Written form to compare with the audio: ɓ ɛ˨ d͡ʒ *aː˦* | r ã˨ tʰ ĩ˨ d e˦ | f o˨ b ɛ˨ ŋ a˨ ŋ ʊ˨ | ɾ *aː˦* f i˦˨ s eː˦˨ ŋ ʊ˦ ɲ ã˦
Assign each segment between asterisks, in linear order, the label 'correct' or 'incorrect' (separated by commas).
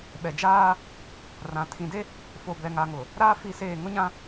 correct, correct